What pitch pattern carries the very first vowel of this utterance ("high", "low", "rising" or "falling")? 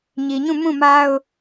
low